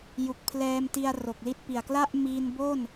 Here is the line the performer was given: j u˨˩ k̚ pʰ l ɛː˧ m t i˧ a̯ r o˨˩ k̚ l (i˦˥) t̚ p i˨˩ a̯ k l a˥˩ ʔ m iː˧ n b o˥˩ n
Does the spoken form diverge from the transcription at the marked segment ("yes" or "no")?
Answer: no